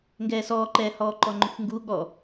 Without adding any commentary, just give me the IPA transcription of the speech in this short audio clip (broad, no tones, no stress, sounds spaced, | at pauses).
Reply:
ŋ ɡ ɛː s ɔː ǃ ɛː h ɔː ǃ ɔ ŋ͡ǃ ʊ xʷ ŋ ɡ u ɠ ɔ